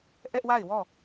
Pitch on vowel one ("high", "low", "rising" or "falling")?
high